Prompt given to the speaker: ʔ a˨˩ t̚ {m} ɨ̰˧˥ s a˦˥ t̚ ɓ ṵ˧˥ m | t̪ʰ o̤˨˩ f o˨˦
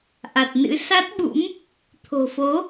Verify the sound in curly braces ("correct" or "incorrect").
incorrect